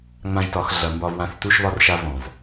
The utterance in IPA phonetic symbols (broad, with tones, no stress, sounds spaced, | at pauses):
ŋ͡m ã˧ ʒ t ɒ˩˧ x ɮ ɐ˩˧ m b ɒ˧ v w ã˧˥ θ t u˧ ʃ β ɒ˧ r ʃ a˧ v ɔ̃˩ v